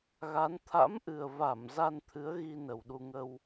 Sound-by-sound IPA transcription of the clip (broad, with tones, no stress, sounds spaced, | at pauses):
ɣ a˨˦ n t̪ʰ a̰˧˥ m ʔ ɨ˨˩ ə̯ v a˧˩ m z a˧ n t̪ʰ ɨ˨˦ ə̯ ɣ i˧ n ə˨˩ w ɗ u˧ ŋ ə˧ w